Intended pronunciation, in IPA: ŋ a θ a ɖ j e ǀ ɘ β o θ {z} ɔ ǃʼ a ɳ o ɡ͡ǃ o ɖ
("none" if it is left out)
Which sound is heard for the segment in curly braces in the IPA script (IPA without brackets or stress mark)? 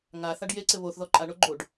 ð